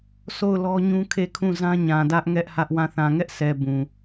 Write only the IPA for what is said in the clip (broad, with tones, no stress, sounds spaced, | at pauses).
s o˦˨ ʊ̯ l ɔ˦ ɲ ũ˦ kʰ e˦˨ kʰ ũ˦˨ z ã˦ ɲ ã˨ d ä˦ ʔ ŋ ɛ˦ ʔ h ä˦ ʔ w ã˦˨ θ ã˨ ŋ ɛ˦ ʔ s ɛ˨ b ũ˨